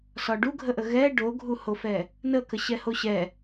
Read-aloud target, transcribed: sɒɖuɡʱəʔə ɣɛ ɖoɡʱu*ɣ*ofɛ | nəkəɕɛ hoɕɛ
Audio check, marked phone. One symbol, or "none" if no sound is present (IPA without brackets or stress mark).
h